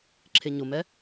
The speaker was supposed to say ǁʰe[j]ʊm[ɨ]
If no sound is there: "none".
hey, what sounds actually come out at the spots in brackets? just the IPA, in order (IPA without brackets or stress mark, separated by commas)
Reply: ɲ, ɛ